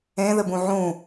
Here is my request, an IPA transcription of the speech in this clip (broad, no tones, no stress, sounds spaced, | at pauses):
ẽ ð ɘ b ũ ʕ ũ